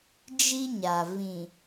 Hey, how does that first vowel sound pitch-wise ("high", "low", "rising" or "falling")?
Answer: high